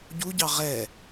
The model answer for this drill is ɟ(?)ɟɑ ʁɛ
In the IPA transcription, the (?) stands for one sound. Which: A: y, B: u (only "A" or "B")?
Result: B